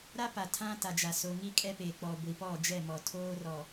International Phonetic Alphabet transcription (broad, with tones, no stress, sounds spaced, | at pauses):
ɾ a˦ p a˨ tʰ ã˦ t a˨ d͡ʒ a˨ s o˨ ŋ i˦ kʼ ɛ˦ p e˨ k͡p ɔ˨ ɡʷ i˨ p ɔ˦˨ d͡ʒ ɛ˦˨ m ɔ˨ tʰ oː˦ r ɔ˨